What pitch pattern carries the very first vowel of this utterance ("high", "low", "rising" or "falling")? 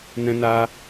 high